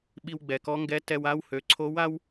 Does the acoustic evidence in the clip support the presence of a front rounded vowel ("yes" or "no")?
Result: yes